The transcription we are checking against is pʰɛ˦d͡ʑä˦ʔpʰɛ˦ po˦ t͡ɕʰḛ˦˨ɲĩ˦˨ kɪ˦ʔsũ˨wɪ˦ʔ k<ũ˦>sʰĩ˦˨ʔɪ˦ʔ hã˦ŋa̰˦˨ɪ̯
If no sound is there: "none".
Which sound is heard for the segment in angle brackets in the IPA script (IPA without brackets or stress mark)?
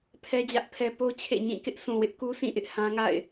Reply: u˦